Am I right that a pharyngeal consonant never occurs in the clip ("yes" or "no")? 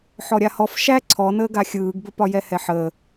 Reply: no